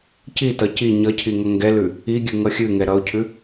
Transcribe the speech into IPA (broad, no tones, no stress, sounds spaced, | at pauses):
c i t ʌ c i ɲ ʌ cʰ i ŋ ʌ ŋ ɡ ɛ l ʉ | i ɡʲ ʉ ŋ ʌ xʲ ʉ ŋ ɛ ɾ ʌ ʊ̯ cʰ ʉ